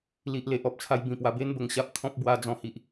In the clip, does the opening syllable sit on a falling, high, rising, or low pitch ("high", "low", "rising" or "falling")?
low